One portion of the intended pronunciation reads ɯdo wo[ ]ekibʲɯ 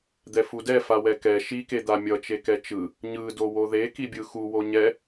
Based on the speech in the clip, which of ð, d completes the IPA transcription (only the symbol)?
ð